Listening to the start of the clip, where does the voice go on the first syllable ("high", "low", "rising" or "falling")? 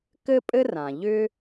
high